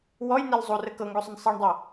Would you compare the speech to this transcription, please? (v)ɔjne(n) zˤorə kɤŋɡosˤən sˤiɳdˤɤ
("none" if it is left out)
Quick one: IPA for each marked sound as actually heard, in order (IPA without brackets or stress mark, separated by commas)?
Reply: w, l